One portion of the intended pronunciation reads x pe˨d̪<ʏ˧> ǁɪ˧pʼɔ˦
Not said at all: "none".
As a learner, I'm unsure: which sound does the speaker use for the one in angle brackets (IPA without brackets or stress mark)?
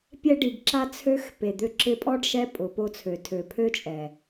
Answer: ʏ˧